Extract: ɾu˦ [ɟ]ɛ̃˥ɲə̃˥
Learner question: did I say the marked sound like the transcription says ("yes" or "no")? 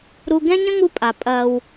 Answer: no